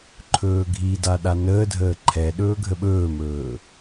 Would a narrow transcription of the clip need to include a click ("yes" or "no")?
yes